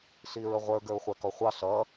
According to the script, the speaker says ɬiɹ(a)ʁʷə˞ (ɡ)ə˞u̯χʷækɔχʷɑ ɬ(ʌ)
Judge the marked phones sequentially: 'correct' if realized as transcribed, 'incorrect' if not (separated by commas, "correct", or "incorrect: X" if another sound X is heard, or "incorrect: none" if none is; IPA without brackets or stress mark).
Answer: incorrect: ə, correct, correct